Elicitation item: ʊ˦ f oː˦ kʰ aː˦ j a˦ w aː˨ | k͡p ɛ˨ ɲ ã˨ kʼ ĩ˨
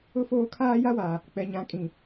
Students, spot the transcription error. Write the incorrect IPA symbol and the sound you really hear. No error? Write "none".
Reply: none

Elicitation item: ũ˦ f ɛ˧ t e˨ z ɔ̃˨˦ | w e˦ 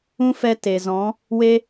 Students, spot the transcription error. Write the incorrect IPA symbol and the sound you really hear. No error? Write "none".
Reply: none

